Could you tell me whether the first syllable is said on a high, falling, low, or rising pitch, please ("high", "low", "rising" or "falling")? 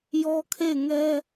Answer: high